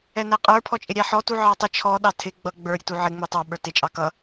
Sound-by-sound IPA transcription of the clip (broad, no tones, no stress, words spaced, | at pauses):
ɛnæqʼə˞ pʰɔt͡ʃʼɪɾʲæħɔ tuʕɑtˤə t͡ʃʰɔ ɗɑtʰɪ ɡ͡bʌ ɡ͡bə˞ɾʲətu ʕɪ ŋ͡mə˞tˤɑɓə˞ tɪt͡ʃʼɑ kʌ